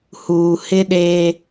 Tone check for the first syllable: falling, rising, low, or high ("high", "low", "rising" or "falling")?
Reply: low